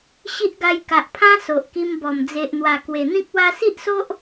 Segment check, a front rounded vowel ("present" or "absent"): absent